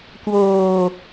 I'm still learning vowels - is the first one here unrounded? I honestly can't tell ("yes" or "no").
no